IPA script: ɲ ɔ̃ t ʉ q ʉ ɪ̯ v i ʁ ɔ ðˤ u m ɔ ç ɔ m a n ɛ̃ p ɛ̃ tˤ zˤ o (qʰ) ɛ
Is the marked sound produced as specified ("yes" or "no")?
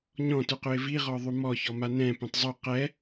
no